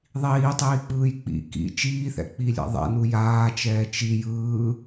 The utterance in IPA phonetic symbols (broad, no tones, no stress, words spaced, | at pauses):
ðˤiːtˤiːk͡pɯːj k͡pḭ kḭ t͡ʃiːθɛ̰k͡pilʲɛ̰ ðˤɛ̰nu jaːt͡ʃɛː t͡ʃi jɯː